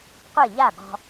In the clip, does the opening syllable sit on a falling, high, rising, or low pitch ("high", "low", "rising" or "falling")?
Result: falling